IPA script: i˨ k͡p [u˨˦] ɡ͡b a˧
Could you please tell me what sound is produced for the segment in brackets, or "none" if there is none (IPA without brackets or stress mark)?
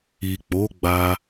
o˨˦